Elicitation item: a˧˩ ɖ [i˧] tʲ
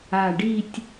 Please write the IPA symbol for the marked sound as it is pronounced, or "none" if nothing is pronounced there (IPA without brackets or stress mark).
i˥˧